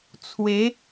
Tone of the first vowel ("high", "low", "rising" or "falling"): rising